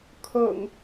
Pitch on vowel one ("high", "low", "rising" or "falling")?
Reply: low